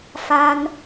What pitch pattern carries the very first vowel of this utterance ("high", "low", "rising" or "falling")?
high